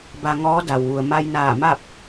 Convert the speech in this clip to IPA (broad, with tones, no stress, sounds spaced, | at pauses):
b a˧ ŋ ɔː˧˥ d a˩ w ʋ u˩ ə̯ m a˧ j n aː˧˩ m a˥˨ p̚